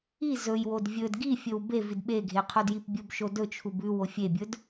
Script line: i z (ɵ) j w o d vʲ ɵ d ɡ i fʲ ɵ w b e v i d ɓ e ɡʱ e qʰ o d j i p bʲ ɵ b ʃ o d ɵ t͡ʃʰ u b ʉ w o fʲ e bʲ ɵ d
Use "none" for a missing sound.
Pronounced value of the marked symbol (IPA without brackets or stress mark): ɵ